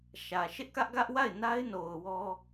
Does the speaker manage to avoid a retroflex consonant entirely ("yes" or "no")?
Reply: yes